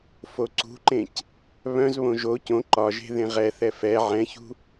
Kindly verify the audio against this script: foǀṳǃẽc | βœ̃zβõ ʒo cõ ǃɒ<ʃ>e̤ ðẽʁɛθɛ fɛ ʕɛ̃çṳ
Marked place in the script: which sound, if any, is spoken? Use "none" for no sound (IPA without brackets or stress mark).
ʒ